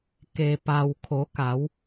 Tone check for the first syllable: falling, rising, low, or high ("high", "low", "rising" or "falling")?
low